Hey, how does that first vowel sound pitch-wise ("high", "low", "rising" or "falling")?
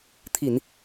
low